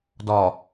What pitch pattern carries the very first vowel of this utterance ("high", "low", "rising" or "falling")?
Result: low